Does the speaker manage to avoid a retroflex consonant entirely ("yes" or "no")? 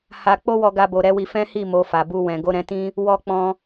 yes